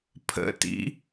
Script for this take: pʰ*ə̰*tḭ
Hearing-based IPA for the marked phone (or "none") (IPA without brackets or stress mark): ə̰